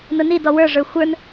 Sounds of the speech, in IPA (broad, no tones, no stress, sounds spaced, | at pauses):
n ʊ n i d ɔ w ə˞ ʐ ə˞ xʷ ə˞ n